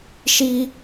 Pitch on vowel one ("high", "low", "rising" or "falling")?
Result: high